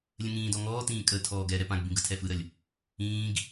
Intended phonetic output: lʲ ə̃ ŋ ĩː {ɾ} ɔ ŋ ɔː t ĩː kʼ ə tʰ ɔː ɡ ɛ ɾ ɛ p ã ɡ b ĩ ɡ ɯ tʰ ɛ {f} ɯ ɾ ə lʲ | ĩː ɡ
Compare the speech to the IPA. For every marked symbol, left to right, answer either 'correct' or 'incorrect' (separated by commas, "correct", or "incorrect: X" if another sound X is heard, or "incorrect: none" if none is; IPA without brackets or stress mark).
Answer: incorrect: d, correct